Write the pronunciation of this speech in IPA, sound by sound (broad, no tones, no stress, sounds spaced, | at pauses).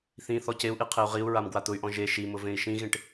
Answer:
θ ĩ θ ɔ c e u̯ ʔ i qʰ e u̯ ʁ i u̯ ɹ a m ɡ w a t̪ ʊ y̯ ʔ ɔ̃ ʒ e ʃ i m ʊ v ẽ i̯ ʃ ĩ ɣ ẽ ʈ